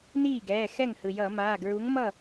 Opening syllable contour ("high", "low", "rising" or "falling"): falling